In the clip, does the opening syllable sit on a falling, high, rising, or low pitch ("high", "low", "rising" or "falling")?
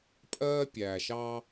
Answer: high